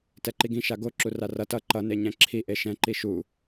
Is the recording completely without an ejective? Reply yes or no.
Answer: yes